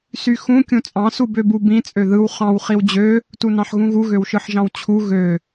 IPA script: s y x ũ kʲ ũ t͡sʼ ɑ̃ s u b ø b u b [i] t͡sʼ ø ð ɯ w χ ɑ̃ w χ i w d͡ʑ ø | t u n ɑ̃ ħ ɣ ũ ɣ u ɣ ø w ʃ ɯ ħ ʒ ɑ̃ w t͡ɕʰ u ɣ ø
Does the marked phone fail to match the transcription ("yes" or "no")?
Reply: yes